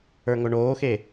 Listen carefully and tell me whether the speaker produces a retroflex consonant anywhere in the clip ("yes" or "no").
yes